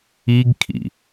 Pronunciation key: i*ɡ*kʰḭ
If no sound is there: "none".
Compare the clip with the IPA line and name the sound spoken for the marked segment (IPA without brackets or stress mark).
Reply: ɡ